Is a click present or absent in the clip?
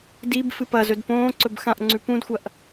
present